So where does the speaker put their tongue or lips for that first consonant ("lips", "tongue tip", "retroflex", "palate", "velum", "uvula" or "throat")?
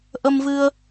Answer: throat